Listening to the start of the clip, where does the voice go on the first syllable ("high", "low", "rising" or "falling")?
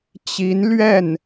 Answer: rising